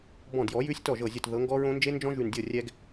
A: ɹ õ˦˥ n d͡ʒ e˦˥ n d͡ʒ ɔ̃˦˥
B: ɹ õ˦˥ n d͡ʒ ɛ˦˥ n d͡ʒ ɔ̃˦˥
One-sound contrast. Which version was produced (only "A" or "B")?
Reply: A